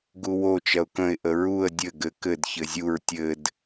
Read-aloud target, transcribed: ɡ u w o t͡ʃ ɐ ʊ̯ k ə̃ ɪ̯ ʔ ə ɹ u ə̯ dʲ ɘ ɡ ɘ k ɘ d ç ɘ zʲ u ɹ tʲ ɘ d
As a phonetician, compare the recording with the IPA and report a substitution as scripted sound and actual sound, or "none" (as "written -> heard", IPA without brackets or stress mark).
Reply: none